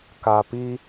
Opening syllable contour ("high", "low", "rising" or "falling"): low